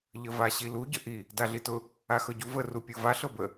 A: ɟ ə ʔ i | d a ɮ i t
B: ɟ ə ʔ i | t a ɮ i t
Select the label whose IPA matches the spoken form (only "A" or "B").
A